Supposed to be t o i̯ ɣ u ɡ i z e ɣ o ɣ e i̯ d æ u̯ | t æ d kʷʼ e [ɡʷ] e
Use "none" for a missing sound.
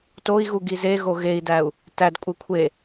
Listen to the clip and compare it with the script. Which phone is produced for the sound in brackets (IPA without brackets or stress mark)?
kʷʰ